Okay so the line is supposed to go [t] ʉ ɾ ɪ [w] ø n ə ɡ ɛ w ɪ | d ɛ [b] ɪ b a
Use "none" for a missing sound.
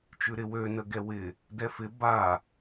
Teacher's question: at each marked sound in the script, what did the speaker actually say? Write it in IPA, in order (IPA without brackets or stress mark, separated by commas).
t͡ʃ, w, f